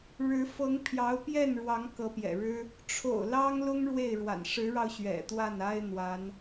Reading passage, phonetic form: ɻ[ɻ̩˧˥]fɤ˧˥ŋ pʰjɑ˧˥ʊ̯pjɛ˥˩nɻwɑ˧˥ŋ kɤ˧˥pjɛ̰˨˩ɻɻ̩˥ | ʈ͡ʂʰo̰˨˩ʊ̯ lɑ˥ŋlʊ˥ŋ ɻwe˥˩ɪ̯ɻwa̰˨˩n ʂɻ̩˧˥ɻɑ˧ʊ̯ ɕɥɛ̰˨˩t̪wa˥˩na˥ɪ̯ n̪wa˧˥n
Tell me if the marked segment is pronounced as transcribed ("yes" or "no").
yes